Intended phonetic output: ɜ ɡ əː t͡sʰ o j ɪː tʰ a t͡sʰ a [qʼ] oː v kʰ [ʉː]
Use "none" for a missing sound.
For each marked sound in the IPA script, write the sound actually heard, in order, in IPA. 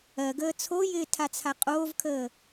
qʼ, əː

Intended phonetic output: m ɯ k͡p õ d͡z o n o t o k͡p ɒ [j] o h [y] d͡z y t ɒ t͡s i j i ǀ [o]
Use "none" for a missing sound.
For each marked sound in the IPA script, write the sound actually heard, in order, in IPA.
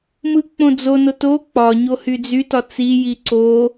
ɲ, y, o

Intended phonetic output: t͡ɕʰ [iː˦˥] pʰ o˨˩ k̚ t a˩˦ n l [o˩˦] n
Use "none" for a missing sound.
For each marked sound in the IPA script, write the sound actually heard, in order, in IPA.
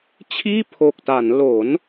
iː˥˩, o˩˦

